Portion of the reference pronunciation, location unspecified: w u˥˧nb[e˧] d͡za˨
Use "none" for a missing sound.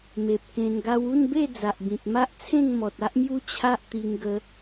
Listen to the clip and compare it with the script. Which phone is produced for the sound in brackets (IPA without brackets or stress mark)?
e˥˧